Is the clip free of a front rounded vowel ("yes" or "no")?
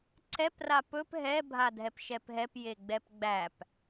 yes